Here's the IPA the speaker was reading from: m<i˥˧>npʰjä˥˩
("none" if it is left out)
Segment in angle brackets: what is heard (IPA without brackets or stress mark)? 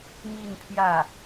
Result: i˥˧